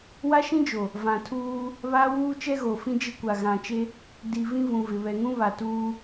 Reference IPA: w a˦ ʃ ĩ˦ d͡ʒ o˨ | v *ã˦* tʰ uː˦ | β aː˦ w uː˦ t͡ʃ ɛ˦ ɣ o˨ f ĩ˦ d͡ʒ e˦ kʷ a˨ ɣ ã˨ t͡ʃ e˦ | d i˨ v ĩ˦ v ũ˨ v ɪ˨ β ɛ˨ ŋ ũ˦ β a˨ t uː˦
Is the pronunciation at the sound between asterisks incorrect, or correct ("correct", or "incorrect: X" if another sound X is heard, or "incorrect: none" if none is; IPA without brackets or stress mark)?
incorrect: ã˨